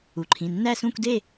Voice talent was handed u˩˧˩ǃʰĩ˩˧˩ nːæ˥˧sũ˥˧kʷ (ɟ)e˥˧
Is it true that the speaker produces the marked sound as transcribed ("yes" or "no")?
no